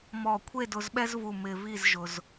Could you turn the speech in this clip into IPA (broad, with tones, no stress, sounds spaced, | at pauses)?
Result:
m ɔ˧˩ kʷʰ e˥˧ d ʊ˧ z ɓ ɛ˥ z v u˧˩ m ɪ˧ v i˥˧ z ʒ ʊ˧ z